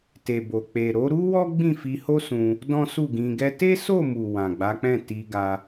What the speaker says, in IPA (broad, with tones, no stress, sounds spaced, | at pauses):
t e˨ b o˨ k͡p e˨ ɾ o˨˦ ɾ u˦ w ɔ˦ ɡ͡b ĩ˦˨ f i˧ h o˦ s ũ˧ | d ɔ̃˦ s u˦˨ ɡ ĩ˧ ɡ ɛ˦ t e˦ s o˦˨ m u˨ w ã˨ ɡ͡b a˨˦ k͡p ɛ̃˦˨ t i˧ ɡ a˧